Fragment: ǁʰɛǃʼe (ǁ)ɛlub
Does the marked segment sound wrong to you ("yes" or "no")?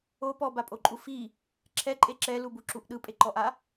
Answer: no